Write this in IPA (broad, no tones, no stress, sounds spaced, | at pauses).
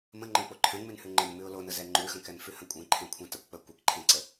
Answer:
m ə̃ ŋ͡ǃ ə̃ k͡p o ǃʰ ɛ̃ ŋ͡m ʉ n h ʉ ŋ͡ǃ e n m ʉ ʊ̯ l o n ə z ɛ ŋ͡ǃ ʉ x ə̃ k ɛ n f ʉ h ə̃ kʷʼ ẽ ǃʰ ẽ kʷʰ ɛ̃ t ə kʷ k͡p ə kʷ e k ǃʰ ẽ ǀ ə